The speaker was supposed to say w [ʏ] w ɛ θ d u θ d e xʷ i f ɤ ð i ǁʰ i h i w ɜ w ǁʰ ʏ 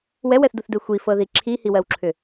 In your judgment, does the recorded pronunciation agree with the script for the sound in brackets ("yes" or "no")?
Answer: no